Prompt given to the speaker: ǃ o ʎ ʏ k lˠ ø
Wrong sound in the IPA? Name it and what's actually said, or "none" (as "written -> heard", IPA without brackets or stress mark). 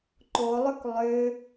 ʎ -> lˠ